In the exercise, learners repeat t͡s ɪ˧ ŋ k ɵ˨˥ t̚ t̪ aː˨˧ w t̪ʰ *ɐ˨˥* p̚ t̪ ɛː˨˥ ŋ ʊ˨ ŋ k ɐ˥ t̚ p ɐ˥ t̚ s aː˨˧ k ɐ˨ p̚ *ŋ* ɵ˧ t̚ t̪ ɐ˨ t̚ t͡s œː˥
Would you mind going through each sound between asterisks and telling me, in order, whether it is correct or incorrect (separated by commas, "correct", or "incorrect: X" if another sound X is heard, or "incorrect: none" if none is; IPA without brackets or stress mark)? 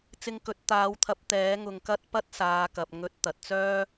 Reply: correct, correct